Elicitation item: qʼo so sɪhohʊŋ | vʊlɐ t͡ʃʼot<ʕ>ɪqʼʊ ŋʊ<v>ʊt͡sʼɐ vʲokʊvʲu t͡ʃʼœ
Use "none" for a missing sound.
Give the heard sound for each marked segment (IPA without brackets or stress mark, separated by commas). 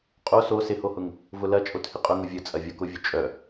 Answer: h, vʲ